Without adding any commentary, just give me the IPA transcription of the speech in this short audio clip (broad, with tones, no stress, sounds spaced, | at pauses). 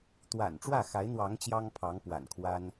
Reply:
t̪ w a̰˨˩ n ʈ͡ʂ w ä˥˩ x a˧˥ ɪ̯ n̪ w ɑ˧˥ ŋ t͡ɕ j ɑ˥ ŋ pʰ ɑ˧˥ ŋ p w a̰˨˩ n kʰ w a˥ n